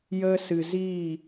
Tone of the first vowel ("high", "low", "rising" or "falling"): high